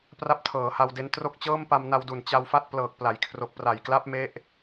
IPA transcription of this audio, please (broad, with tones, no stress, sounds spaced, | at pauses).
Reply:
p r a˦˥ p̚ tʰ ɤː˩˦ h a˧ w d e˧ n t r o˥˩ k̚ t͡ɕ ɤː˥˩ m p a˧ m n a˧ w d u˨˩ n t͡ɕ a˧ w f a˥˩ t̚ p l ɤː˨˩ k̚ p l a˩˦ j kʰ r o˨˩ k̚ p r a˨˩ j k l a˦˥ p̚ m e˦˥ ʔ